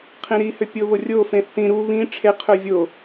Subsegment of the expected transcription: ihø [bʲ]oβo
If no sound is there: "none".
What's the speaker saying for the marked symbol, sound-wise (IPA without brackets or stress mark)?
pʲ